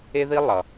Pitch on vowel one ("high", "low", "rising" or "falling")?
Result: high